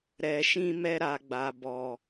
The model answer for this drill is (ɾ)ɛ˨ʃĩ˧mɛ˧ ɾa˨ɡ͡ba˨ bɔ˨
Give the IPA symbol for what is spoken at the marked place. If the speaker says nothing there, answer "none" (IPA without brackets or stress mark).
ɾ